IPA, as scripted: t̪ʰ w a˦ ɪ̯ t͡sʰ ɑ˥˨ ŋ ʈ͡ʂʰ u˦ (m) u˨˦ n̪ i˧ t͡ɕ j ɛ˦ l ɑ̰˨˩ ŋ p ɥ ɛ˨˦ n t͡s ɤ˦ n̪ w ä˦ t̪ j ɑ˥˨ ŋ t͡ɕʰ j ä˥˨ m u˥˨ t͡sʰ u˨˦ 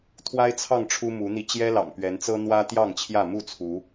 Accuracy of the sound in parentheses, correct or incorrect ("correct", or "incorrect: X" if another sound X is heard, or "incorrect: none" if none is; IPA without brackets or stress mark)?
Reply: correct